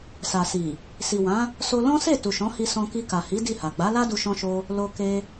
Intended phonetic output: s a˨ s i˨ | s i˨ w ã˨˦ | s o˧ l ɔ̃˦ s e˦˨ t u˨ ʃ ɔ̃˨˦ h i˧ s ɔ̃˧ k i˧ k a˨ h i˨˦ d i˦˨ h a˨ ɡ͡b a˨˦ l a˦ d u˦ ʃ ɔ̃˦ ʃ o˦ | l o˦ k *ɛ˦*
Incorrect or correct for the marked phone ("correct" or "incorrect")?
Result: incorrect